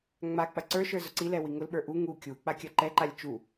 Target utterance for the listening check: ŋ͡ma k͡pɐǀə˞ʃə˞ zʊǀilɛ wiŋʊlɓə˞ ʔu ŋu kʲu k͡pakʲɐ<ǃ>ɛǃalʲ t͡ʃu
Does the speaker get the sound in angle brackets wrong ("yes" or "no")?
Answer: no